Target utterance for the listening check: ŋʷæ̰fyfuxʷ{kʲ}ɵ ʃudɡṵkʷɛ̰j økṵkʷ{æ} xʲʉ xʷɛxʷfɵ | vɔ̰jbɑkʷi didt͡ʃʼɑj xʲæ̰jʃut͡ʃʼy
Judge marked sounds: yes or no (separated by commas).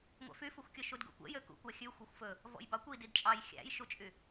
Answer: yes, yes